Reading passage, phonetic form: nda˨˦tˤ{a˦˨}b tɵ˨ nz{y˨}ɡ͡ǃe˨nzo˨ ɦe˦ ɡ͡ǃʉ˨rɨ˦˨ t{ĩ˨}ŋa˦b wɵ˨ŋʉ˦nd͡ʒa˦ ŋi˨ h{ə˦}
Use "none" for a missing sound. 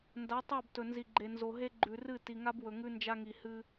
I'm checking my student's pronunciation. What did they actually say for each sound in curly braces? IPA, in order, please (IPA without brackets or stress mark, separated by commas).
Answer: a˦˨, i˨, i˨, ɨ˦